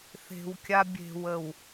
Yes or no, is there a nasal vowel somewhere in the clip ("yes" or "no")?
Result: no